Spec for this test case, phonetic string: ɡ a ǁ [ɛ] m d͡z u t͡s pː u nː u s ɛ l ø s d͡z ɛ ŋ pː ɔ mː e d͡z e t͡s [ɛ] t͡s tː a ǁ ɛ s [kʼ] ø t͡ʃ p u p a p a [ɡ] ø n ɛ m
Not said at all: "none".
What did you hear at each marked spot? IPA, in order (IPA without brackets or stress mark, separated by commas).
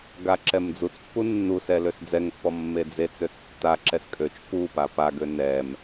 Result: ɛ, ø, kʼ, ɡ